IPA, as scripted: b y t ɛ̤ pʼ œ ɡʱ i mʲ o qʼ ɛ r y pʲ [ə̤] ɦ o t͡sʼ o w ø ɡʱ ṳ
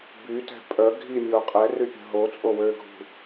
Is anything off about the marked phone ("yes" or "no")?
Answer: no